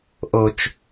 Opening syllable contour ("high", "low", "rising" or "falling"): low